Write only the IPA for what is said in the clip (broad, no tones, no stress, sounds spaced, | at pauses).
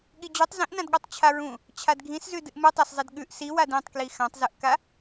ɠ i d͡ʑ u tˤ z ĩ ʔ n ã d ɠ o tˤ t͡ɕʰ a ɹ ũ | t͡ɕʰ a d ɡʱ ĩ s z ʉ d ɨ ʔ m ɨ tˤ a s zˤ i d ɠ ʉ ʔ s i w a d ĩ tˤ k l i x ã tˤ z ɨ ʔ k a